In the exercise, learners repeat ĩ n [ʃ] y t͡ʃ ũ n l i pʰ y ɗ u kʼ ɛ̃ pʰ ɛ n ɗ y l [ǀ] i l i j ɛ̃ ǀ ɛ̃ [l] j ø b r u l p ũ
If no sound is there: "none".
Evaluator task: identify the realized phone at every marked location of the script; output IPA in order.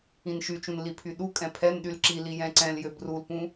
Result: ʃ, ǁ, l

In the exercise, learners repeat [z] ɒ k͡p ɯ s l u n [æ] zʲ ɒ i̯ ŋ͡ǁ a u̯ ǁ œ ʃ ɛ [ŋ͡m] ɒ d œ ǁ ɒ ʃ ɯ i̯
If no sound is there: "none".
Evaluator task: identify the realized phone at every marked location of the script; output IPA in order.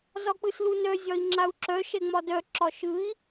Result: z, œ, ŋ͡m

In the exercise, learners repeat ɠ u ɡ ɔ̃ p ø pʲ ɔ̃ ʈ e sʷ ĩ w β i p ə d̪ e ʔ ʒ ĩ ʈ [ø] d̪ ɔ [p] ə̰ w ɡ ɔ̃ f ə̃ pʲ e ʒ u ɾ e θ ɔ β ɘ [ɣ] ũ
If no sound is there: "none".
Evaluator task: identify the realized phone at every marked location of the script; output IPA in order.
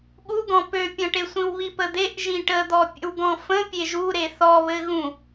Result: ə, pʲ, ɣ

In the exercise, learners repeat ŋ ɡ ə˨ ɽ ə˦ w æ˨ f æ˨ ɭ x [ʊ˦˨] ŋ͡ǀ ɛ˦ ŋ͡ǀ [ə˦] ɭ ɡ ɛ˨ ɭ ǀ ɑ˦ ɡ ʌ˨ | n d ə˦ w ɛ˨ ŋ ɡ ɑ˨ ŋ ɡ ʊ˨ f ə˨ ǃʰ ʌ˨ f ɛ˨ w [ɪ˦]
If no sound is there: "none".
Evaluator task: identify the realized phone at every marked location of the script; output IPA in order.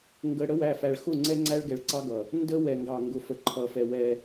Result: ʊ˦˨, æ˦, ɛ˦

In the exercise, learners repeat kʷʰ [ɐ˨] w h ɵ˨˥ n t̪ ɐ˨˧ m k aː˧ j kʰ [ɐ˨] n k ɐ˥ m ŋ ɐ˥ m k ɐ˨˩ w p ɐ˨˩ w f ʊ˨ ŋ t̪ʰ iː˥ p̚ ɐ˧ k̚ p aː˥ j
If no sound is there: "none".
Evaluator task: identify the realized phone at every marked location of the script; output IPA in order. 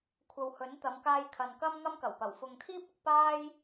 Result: ɐ˨, ɐ˨

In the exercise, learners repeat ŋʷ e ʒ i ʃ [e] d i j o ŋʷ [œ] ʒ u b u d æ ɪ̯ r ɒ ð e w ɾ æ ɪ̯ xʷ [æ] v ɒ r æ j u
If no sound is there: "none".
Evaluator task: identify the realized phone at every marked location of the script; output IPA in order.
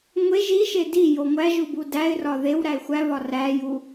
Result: e, æ, æ

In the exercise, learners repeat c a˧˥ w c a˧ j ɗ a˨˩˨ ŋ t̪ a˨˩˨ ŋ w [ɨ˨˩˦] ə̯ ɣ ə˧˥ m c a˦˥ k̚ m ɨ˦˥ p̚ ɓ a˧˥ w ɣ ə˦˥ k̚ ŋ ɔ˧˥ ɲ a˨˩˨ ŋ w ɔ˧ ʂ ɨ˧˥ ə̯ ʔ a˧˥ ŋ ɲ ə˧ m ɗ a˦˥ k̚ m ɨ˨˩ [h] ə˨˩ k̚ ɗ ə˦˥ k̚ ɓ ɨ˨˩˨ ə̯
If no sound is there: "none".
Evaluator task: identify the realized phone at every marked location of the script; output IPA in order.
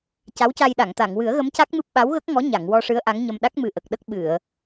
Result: ɨ˨˩˦, ʔ

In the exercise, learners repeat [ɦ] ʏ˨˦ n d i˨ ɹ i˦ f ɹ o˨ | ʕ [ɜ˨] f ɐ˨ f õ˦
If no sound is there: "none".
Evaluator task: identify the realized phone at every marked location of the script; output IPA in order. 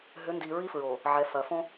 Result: ɦ, ɛ˨

